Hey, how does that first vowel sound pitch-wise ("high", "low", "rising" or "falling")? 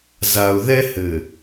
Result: low